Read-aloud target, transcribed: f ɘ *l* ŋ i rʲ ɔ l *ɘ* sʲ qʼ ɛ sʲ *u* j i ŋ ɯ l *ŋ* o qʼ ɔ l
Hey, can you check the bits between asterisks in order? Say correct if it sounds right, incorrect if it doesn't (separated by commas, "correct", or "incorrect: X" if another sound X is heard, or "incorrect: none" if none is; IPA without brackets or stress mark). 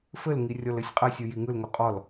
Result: correct, correct, incorrect: ɯ, correct